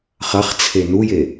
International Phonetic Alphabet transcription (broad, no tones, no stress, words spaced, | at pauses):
χɐχt͡sʰe nuje